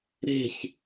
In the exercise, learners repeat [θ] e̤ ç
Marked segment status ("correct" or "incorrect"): incorrect